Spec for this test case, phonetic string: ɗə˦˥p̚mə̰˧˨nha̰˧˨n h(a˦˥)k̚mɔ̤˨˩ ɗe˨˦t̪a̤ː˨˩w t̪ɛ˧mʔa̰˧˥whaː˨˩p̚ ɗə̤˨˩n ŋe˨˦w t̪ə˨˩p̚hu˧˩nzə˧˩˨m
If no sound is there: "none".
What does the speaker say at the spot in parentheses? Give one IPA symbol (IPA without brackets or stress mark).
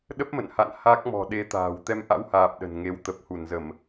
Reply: a˦˥